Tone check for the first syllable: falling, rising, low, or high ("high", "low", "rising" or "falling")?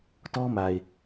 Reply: high